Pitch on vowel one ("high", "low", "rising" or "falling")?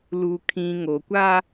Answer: low